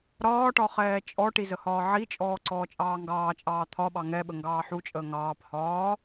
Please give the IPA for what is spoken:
ɾ ɒː ʈ ɒ χ ɛː t͡ʃʼ ɔ ʈ i z ə h ɒː ʕ i t͡ʃʼ ɔː ǀ ɔː t͡ʃʼ ɑː ŋ ɡ ɑː t͡ʃʼ ɑː t̪ʰ ɒ ɓ ɑ ŋ ɛ ɓ ə ŋ ɡ ɑː ħ u t͡ʃʼ əː ŋ ɑː p h ɒː

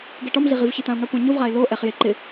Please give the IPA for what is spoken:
ɡ ɛ ʈ ɔ m ɮ i ʁ i v ç ɪ t̪ ã ʊ̯ ŋ a kʷ ã ɲ ʊ v ʁ a ɪ̯ l o ʔ ɛ χ j e ǃ ɪ

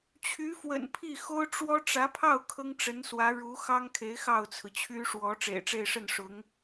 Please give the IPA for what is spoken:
t͡ɕʰ y˧˥ f w ə̰˨˩ n pʰ i˥˩ x o˥ ʊ̯ ʈ͡ʂ w ɔ˥ ʈ͡ʂ ä˧˥ pʰ ɑ˥˩ ʊ̯ kʰ ɤ˥ ŋ ʈ͡ʂ ə˧˥ n s w ä˧˥ ɻ u˧˥ x ɑ˥ ŋ kʰ e˧˥ ɪ̯ x ɑ˥˩ ʊ̯ t͡sʰ ɹ̩˩ t͡ɕʰ y˥ ʂ w ɔ˧˥ ʈ͡ʂ ḛ˨˩ ɪ̯ ʈ͡ʂ e˥˧ ɪ̯ ʂ ə˥˩ n ʂ ʊ˧˥ ŋ

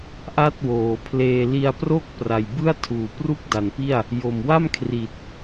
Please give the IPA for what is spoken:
ʔ a˥˩ t̚ w oː˩˦ pʰ l eː˧ l i˧ a̯ p r o˥˩ k̚ p r a˨˩ j b ɯ˥˩ a̯ tʰ uː˨˩ p r u˥˩ k̚ d a˩˦ n p i˥˩ a̯ | j o˨˩ m w a˥˩ m kʰ r i˨˩ t̚

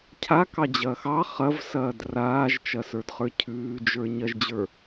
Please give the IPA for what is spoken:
cʰ a k ɑ d͡ʑ ɐː x ɑ χ ɐ v s ɐː d r aː ʒ t͡ʃ ɐ s ə˞ d χ ə˞ cʰ ʉː d͡ʒ ə˞ ɲ ɐ ʒ d͡ʑ ə˞

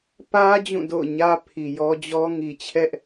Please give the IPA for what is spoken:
p ä˦ d͡ʑ ũ˦˨ d o̰˦˨ ʊ̯ ɲ ä˦ pʰ i˨ j ɔ˦ d͡ʑ ɔ˦ ŋ i˨ t͡ɕʰ ɛ˦ ʔ

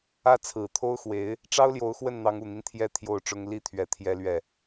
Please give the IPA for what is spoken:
ä˥˩ t͡sʰ ɹ̩˨˩ t̪ʰ o˥ ʊ̯ x w e˧˥ ɪ̯ | ʈ͡ʂ ɑ˥ ʊ̯ l j o˧˥ ʊ̯ x w ə˥˩ n n̪ ɑ˧˥ ŋ u˨˩ n̪ i˦ n t̪ʰ j ɛ˧˥ t̪ʰ j o˥˩ ʊ̯ ʈ͡ʂ ʊ˥ ŋ l i˥˩ t̪ʰ ɥ ɛ˧˥ t̪ʰ j ɛ˥ l ɥ ɛ˥˩

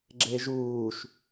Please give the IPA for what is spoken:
ɡ͡ǁ e ʒ uː ʃ

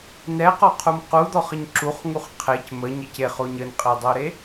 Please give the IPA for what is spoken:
n ɛ q ɔ qʰ u m q u d̪ ɔ χ ə ɲ ǁ u χ ŋ u χ qʰ e c m ə ɲ ɘ c e χ o ɲ ə n qʼ e dˤ o ɾ e

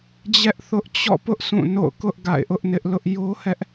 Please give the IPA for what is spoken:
d͡ʑ ɛ˦ ʔ θ ʊ˦ ʔ t͡ɕ ɔ̰˦˨ p ʊ˦ ʔ s ũ˦˨ n o̰˦˨ ʊ̯ k ʊ˦ ʔ ɡ a̰˦˨ ɪ̯ ʔ ʊ˦ ʔ n ɪ˦ ʔ l ʊ˦ ʔ j o˦ h ɛ˦ ʔ

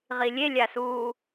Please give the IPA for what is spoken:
ʁ i lʲ e lʲ a s uː

